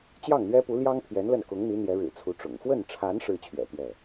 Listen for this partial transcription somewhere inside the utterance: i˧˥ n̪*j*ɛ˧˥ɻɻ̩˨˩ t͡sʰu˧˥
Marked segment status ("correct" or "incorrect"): correct